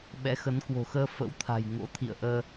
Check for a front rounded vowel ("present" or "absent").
absent